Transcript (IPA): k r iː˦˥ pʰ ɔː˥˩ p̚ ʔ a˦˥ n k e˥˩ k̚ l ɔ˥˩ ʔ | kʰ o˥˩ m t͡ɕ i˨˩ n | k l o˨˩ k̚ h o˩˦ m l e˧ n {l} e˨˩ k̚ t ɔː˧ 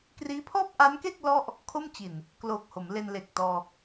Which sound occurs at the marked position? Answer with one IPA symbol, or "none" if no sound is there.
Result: l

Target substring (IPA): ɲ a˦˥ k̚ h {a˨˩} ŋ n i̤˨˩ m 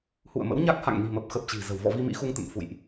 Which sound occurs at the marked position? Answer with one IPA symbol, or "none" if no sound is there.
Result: a̰˧˨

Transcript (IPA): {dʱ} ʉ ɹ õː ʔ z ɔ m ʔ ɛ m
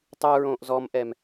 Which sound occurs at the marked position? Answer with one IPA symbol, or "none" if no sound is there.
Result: tˤ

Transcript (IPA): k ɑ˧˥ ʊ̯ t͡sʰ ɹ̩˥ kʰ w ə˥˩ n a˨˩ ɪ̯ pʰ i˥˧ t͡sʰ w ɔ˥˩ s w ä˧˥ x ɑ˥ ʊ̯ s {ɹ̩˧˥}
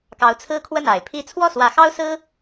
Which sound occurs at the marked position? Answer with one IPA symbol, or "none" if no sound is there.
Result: ɹ̩˥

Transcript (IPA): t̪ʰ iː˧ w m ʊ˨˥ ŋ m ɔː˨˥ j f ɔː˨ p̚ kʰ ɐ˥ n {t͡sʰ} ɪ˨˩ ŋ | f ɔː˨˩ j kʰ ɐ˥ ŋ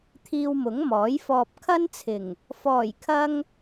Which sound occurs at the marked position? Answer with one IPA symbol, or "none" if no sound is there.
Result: t͡sʰ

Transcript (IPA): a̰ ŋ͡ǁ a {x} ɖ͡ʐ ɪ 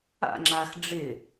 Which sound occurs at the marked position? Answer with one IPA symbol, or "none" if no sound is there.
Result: x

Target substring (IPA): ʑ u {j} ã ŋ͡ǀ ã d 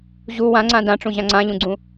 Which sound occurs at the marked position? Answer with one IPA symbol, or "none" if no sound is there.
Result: w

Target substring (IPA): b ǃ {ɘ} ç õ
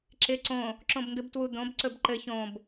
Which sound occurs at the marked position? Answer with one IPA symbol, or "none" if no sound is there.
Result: ɘ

